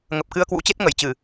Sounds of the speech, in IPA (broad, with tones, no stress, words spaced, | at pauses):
ŋə˨˩p̚kɨ˧ə̯kwṵ˧˥t͡ɕe˦˥t̚ ŋə˧˩jt͡ɕɨ˧˩˨